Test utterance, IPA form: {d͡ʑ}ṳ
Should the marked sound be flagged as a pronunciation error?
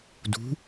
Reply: yes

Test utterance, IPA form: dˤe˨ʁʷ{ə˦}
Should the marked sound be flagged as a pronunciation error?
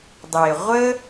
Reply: no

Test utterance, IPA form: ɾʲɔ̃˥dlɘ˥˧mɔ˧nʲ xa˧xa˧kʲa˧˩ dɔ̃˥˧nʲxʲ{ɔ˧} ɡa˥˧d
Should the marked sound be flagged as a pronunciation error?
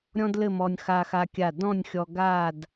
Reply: no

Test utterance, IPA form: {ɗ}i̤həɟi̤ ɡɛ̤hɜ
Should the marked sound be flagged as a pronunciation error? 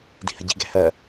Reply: yes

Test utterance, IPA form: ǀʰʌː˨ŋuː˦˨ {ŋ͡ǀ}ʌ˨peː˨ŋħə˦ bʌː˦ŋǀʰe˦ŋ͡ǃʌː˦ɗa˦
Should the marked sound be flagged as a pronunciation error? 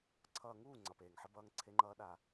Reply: no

